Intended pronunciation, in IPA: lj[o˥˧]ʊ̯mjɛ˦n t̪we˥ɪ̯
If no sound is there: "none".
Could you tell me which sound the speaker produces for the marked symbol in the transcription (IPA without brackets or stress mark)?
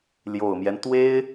o˨˩